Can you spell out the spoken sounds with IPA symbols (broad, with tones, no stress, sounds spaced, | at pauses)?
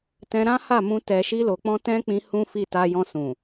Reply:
t ɛ̃˧ ɾ ã˦ h a˦˨ m ũ˧ t ɛ˨ ʃ i˧ l o˨ k͡p ɔ̃˧ t ɛ̃˦ k͡p ĩ˧ h ũ˦ f i˦˨ t a˧ j ɔ̃˧ s ũ˨